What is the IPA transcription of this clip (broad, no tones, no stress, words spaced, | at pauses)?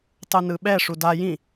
tˤɯnɯɓɛ ʂuda jĩ